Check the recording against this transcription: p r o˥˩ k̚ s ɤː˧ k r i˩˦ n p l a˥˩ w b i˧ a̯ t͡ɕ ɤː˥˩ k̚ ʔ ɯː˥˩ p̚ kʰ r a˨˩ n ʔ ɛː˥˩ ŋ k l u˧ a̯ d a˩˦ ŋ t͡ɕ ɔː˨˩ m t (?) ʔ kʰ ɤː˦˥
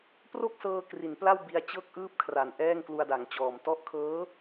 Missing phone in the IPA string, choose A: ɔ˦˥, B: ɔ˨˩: A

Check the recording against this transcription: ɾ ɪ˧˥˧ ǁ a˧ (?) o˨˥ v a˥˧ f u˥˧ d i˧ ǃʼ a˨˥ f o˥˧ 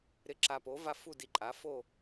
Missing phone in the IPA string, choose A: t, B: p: B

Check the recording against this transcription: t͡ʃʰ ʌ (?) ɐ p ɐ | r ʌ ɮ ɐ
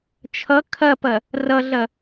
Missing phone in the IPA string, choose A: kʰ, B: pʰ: A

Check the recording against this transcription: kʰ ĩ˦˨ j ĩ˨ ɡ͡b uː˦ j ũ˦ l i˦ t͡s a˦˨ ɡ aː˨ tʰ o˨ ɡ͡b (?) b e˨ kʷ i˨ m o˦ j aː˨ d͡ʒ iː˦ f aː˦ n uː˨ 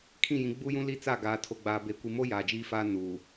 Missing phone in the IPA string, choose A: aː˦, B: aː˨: B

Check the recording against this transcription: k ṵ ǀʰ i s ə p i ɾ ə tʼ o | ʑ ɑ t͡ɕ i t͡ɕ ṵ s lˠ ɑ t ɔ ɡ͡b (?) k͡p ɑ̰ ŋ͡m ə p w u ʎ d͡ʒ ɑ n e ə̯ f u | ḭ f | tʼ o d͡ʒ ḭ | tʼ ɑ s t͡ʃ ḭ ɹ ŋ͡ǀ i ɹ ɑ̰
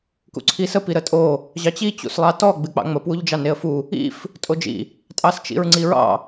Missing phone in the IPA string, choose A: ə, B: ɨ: B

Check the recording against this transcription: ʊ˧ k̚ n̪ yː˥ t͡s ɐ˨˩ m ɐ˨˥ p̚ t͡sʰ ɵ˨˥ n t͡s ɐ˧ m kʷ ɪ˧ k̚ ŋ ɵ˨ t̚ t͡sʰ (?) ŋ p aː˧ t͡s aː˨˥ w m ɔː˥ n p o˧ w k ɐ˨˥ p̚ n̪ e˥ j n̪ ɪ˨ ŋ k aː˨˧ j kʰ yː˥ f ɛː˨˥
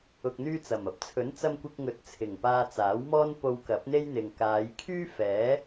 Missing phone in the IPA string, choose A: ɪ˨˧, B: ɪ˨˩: B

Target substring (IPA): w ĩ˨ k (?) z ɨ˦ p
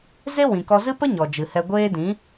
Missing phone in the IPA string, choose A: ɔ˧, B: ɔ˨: A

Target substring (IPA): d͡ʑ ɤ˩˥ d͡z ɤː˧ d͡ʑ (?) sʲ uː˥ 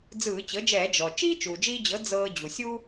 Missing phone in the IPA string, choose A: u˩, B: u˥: A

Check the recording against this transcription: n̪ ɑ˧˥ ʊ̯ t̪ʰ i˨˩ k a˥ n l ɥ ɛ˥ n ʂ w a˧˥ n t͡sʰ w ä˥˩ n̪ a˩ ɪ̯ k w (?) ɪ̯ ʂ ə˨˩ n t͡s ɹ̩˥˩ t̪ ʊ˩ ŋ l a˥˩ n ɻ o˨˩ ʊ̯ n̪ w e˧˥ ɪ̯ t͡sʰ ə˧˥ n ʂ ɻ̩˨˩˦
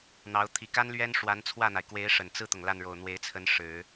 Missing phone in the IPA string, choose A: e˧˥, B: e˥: A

